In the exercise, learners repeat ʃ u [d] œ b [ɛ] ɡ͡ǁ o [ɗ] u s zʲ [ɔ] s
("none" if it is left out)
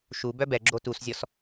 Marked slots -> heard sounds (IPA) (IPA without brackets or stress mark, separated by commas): b, ɛ, t, ɔ